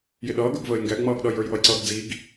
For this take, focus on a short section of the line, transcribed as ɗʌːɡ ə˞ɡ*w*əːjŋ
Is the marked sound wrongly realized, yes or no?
yes